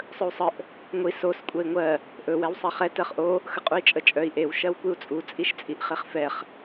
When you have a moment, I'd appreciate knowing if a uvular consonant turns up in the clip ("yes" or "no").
yes